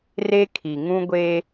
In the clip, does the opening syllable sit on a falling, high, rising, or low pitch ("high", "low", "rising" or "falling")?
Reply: high